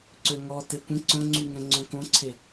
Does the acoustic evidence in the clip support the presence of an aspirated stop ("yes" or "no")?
yes